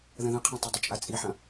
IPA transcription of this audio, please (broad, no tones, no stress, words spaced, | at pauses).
ðə̃ðə̃qʰĩtˤʏ dˤət͡ʃʼat͡sʼiħɐ̃